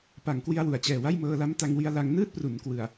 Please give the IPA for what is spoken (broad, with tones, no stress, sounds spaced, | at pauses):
p a˨˩ ŋ k w i˧ a̯ w u˩˦ a̯ t͡ɕ ɛː˨˩ w a˥˩ j m ɤː˧ l a˦˥ m t a˧ ŋ w i˧ a̯ l a˧ ŋ n ɯː˥˩ t̚ p r u˩˦ n k w ɯ˨˩ a̯